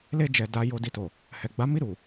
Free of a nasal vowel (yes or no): yes